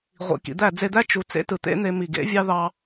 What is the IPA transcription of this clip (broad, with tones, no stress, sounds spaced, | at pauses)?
ʁʷ ḭ˨ k ḭ˨ d̪ æ˦˨ d͡z e˧ d̪ æ˦ t͡ʃ u˧ t͡s ḛ˦ t ɯ˨ t̪ ḛ˦ n̪ e˧ m i˨ ɡ ḛ˨˦ vʲ ɑ˦ ð ɑ˧